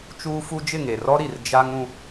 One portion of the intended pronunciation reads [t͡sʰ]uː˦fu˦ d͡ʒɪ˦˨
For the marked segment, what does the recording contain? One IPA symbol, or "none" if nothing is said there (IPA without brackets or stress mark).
t͡ʃ